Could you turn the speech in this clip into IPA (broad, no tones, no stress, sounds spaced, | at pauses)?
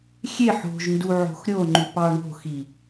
xʲ e ħ o̤ ʒ n d u ʕ o̤ x ɾʲ o ŋ͡ǃ y p ɑ ɳ o̤ x i